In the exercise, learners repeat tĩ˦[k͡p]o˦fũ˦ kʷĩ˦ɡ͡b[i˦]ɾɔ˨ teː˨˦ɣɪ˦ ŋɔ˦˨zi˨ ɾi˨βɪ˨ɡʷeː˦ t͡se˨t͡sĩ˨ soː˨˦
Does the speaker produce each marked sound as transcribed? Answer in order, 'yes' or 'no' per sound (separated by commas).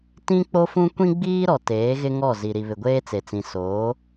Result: yes, no